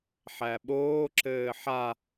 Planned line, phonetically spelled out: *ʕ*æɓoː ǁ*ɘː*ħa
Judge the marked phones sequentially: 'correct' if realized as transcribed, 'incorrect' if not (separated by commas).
incorrect, correct